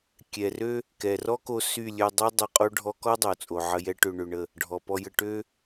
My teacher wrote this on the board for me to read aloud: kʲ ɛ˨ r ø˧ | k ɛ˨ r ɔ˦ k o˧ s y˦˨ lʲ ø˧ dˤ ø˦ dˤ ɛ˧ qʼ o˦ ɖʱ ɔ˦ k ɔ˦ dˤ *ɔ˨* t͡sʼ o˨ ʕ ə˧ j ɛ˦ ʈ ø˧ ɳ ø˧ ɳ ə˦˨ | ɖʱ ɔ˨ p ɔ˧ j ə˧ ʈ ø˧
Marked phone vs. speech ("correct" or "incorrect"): incorrect